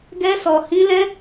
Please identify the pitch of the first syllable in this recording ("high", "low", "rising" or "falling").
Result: high